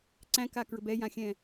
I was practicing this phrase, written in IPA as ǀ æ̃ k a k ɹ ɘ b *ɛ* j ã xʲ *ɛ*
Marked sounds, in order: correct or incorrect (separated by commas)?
correct, incorrect